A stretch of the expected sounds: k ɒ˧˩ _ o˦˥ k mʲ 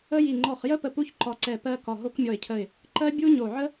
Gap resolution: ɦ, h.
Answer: ɦ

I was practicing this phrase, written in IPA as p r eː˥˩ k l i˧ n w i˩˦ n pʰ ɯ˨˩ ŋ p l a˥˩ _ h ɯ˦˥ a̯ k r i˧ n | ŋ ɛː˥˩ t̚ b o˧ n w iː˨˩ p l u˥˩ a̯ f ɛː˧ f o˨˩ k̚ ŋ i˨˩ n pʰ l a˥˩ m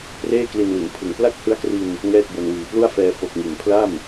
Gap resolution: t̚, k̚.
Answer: k̚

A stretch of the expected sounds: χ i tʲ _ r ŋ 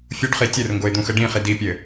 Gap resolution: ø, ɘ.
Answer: ɘ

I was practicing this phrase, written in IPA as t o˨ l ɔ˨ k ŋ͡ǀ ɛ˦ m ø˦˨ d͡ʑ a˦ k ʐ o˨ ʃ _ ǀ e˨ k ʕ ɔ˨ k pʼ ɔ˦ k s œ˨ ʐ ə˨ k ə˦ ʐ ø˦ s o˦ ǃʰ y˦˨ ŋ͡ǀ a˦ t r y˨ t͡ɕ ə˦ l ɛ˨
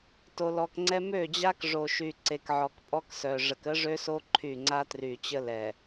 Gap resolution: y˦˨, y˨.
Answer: y˨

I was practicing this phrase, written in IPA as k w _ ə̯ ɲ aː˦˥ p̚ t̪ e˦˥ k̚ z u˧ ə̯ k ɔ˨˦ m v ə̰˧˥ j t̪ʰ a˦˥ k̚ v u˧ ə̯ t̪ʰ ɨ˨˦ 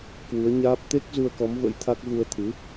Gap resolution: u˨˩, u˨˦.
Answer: u˨˦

